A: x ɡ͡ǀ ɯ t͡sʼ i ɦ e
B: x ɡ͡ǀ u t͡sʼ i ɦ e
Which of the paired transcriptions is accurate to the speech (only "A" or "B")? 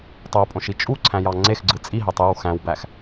A